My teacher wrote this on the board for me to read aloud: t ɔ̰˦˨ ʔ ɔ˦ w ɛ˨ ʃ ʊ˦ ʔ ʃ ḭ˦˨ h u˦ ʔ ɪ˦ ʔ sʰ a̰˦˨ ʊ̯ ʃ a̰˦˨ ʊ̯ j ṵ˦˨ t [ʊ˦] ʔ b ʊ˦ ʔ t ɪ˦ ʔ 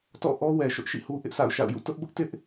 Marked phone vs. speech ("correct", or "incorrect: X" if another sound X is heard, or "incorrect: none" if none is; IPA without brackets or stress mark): correct